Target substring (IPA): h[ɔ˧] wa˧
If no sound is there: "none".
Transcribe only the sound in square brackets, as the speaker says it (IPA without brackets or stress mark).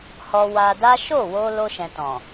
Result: ɔ˧